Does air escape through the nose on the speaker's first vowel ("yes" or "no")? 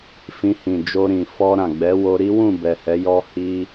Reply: yes